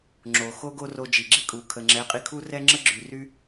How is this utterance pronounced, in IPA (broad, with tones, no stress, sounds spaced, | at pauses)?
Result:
ŋ͡ǁ o˨ x o˦ ɡ o˦ r o˧ d͡ʒ i˨ ɡ͡ǁ i˦ kʼ u˨ kʰ ə˨ ŋ͡ǁ ɛ˨˦ qʼ i˧ kʰ u˦ r ɛ˦ ŋ͡ǁ ə˦ ɡ͡ǁ y˨ r y˦